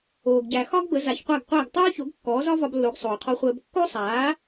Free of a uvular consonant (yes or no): no